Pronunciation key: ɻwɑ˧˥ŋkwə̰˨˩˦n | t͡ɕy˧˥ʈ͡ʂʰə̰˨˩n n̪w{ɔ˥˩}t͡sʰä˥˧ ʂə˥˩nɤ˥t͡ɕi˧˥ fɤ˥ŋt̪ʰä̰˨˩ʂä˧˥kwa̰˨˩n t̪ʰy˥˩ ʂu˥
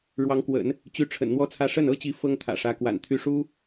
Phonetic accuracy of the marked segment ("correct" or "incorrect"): incorrect